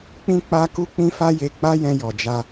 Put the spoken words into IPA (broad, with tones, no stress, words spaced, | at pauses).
k͡pĩ˦k͡pa˦ ku˦k͡pĩ˦fa˦je˧ k͡pa˦jɛ̃˧jɔ˨ d͡ʒa˧